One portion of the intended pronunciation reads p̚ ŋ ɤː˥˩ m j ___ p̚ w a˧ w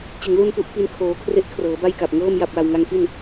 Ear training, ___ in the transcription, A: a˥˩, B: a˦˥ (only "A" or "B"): A